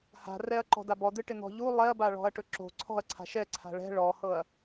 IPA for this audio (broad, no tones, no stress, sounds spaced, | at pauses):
h a̤ r ɛ ɐ̯ ǃ ɔ̤ d a b ɔ d̪ ɨ ʈ ɪ n̪ ɔ̤ ʎ u lˠ ɛ ɐ̯ b a ɭ ɔ̤ ɐ̯ ʈ ɵ ǁ o̤ ǀʰ ɔ̤ ɐ̯ ǀʰ a̤ ʃ ɛ ǀʰ a̤ ɭ ɛ̤ ɭ ɔ h ɤ ɐ̯